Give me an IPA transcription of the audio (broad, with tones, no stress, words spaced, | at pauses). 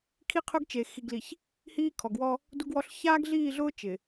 kʰi˦qʰʊ˦ɡt͡ʃe˨ xi˨ɡli˨ç | hiː˦ kʰɔ˨ɡwɔ˦ | du˦ɡwɔ˦ɬ çaː˦ɡɮiː˦˨ɮʊː˦ t͡ʃɪ˨